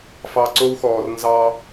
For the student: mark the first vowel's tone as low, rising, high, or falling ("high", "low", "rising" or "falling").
low